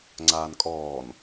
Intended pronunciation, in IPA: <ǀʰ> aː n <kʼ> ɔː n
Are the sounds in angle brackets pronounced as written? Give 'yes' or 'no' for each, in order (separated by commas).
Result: no, yes